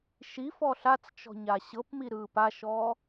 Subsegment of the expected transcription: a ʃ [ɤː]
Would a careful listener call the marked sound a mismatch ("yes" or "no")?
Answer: yes